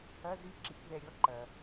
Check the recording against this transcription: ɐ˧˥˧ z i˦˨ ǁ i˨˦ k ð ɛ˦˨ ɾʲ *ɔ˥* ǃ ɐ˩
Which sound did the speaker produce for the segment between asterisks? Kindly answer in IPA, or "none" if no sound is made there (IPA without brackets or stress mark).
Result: ɔ˥